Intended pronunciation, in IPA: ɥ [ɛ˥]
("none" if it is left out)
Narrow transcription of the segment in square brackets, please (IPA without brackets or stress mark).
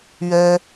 ɛ˥